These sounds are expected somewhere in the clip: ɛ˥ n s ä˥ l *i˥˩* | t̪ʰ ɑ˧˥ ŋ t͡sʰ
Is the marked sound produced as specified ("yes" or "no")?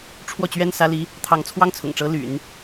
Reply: no